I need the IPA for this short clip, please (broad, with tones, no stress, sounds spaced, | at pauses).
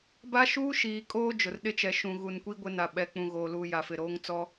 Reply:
b a˦ ʃ uː˦ ʃ iː˨ kʼ oː˦ d͡ʒ ʊ˨ r ɗ ɪ˦ t͡ʃ ɛ˨ ʃ ũ˨ ɣ u˨ n kʷ i˦ ɡʷ ɪ˦ n a˨ ɓ ɛ˨ k͡p ũ˨ ɣ oː˨ l uː˨ j a˨ f ɪ˨ ɾ oː˦ ŋ t͡s ɔ˦